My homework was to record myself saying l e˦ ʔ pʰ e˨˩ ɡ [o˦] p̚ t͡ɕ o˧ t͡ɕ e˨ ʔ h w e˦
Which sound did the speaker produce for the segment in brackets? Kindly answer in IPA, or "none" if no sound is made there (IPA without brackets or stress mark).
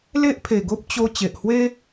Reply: o˦